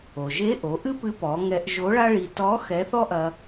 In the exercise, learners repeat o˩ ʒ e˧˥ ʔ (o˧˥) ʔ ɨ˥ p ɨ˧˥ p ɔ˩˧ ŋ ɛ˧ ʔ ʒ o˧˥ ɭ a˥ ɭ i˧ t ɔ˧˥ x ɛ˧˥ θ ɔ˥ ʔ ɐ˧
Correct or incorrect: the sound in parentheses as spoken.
incorrect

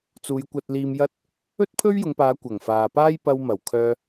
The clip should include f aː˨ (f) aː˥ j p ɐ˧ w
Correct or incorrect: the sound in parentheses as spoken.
incorrect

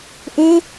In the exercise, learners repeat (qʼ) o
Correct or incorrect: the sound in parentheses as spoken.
incorrect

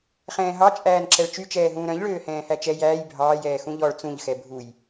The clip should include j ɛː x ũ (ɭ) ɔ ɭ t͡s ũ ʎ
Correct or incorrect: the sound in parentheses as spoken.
incorrect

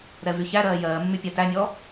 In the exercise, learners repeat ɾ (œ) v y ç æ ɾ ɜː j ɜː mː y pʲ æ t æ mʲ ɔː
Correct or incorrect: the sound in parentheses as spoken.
incorrect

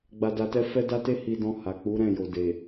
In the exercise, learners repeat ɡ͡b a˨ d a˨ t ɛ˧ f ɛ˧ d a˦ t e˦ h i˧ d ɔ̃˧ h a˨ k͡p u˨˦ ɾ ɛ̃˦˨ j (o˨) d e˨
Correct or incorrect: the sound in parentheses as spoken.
correct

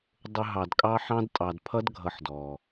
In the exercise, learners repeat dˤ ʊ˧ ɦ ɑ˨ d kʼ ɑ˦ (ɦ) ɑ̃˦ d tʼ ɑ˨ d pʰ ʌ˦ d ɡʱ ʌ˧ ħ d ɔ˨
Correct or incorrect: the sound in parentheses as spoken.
incorrect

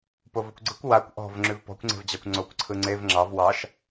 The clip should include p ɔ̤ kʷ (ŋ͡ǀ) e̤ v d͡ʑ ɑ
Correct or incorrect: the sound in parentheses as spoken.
correct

